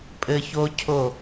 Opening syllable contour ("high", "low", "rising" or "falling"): high